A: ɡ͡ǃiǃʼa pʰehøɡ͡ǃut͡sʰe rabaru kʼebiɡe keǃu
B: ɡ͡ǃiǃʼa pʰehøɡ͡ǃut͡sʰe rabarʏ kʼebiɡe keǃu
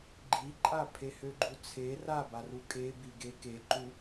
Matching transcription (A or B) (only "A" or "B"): A